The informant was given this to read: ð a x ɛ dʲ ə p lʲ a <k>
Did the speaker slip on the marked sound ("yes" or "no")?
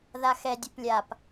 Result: yes